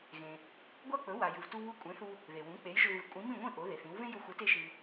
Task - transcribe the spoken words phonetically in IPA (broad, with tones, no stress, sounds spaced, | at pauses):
ɣ ẽ˩ | ɡʷ a˥ k͡p ɵ˩˥ w a˩ j ɨ˩ v t u˧ β u˧ kʷʼ ẽ˩˥ θ u˧ | ð e˩ w ũ˩˥ k͡p e˩˥ j ʒ ʏ˧ v ɨ˩˥ kʷʼ ĩ˩˥ m ĩ˥˩ ŋʷ ĩ˥˩ ʔ o˩˥ ð e˩ θ ĩ˩˥ w v ẽ˥ j ʏ˧ xʷ ɨ˩˥ t e˧ ʃ ɨ˩